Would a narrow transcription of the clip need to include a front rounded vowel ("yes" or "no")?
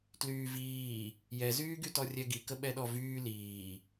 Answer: yes